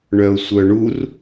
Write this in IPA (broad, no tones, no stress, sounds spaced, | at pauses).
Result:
ɳ œ ʊ̯ sʷ œ ɳ u r